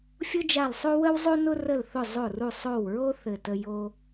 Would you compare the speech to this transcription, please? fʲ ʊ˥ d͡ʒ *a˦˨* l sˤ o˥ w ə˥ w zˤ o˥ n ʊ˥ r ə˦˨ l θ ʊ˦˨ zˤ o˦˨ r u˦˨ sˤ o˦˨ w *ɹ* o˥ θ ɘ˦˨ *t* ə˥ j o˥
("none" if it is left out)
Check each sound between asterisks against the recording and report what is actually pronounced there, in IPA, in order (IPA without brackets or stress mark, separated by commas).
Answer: a˦˨, ɹ, t